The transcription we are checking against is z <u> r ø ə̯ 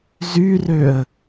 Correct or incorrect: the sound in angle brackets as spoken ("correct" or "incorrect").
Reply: incorrect